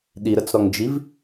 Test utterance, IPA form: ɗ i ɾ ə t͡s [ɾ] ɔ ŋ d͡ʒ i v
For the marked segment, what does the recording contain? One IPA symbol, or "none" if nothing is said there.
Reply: ɾ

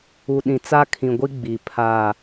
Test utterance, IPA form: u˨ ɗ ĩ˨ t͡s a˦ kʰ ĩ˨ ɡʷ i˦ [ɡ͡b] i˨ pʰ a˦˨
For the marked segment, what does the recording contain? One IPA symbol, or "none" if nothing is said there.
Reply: ɡ͡b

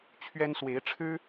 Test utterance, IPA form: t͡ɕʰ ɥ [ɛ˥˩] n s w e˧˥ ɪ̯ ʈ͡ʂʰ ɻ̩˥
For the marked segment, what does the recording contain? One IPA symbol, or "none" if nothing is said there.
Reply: ɛ˥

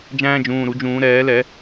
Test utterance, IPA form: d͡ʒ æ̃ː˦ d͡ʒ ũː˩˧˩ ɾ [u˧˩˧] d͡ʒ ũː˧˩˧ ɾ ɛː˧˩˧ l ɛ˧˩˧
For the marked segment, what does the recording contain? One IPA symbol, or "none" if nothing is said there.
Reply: u˧˩˧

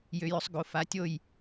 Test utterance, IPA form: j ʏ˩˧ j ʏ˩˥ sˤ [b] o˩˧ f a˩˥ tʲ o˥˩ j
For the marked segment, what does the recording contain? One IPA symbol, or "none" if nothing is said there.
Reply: ɡ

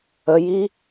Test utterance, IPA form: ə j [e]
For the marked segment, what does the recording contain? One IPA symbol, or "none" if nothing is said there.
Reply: i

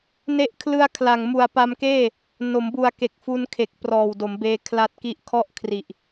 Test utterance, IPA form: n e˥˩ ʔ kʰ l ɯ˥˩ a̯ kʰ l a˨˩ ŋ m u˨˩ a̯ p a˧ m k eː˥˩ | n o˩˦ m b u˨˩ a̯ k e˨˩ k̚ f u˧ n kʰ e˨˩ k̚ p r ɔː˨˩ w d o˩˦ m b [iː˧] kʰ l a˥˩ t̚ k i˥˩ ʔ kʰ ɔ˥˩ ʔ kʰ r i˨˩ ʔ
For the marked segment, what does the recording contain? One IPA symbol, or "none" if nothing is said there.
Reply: eː˧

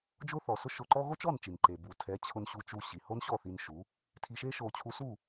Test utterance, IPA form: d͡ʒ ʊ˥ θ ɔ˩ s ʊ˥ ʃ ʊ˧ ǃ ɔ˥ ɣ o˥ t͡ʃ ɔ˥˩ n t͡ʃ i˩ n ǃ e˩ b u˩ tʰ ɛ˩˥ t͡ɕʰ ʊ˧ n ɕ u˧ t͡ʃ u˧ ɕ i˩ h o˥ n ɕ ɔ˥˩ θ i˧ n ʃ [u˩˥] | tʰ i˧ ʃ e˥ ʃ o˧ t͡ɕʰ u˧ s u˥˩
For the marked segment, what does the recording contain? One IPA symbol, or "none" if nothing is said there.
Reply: u˩˥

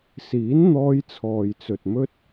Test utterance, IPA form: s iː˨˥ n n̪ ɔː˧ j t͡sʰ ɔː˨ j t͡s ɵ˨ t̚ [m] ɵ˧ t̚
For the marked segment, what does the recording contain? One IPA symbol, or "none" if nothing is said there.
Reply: m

